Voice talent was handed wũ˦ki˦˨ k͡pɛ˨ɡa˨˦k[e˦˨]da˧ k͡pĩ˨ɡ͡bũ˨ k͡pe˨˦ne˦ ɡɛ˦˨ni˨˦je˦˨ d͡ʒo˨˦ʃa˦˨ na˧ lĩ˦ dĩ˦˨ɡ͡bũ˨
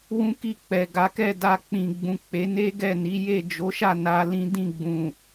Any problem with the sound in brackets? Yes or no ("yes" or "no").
yes